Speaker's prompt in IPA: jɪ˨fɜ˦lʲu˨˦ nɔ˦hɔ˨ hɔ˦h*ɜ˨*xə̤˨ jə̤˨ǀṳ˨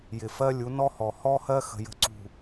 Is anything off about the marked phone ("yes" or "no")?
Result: yes